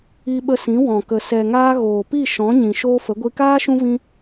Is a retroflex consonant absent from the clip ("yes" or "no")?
yes